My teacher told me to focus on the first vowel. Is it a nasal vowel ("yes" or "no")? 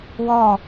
no